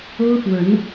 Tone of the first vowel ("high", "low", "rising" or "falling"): high